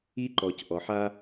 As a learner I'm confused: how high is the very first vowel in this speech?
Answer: high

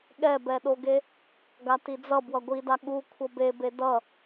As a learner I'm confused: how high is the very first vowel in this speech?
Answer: mid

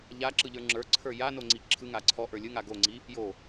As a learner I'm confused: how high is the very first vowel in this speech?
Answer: low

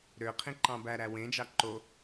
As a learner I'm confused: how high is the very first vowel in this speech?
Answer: mid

